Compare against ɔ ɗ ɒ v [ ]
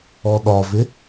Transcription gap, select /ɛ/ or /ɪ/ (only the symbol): ɪ